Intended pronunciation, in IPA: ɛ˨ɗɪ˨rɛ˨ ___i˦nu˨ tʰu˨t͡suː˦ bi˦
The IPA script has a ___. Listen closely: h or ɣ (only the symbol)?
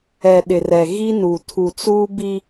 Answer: ɣ